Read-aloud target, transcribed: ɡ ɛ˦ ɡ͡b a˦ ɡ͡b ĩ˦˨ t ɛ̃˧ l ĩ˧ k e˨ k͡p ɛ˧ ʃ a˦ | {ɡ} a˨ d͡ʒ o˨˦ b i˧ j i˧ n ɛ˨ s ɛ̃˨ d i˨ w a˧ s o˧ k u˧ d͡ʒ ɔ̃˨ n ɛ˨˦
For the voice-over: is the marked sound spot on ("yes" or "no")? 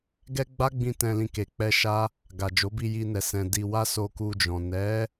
yes